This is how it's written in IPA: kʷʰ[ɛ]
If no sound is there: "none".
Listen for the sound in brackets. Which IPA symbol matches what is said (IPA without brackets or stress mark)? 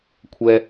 ɛ